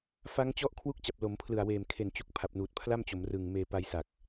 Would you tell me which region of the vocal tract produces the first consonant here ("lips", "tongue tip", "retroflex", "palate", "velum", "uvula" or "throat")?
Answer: lips